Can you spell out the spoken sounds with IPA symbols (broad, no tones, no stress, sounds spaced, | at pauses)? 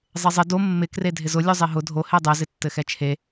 zˤ e zˤ ɪ d o mː ɪ k r e dʱ ɪ z ʊ lʲ o zˤ e ɦ ʊ dʱ o h e dˤ ɛ z ɪ tː ɘ x ɛ t͡ʃʰ e